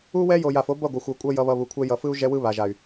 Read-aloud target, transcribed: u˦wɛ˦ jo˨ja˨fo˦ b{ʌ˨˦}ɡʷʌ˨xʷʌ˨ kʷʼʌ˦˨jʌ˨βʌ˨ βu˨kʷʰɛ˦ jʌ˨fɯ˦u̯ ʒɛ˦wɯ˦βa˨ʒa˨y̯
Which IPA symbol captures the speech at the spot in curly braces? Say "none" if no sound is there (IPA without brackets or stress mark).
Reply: ʌ˦˨